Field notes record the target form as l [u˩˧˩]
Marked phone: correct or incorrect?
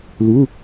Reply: correct